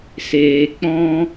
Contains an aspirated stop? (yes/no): no